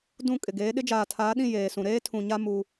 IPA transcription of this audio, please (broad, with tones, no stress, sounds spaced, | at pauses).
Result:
d ũ˦˨ kʼ ɪ˨ ɡ eː˨˦ ɗ ɪ˦ d͡ʒ aː˨ tʰ aː˨˦ ɗ ĩ˦˨ j eː˨ s ũ˨ ɾ eː˦ tʰ ũ˨ ɲ a˦ m u˦